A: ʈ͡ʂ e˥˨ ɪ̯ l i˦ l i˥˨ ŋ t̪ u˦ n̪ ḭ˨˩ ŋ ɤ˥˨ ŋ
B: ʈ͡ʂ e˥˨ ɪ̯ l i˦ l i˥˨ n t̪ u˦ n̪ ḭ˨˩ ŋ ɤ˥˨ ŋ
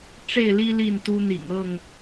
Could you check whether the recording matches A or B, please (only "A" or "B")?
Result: B